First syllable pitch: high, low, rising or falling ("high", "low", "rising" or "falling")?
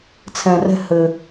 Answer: low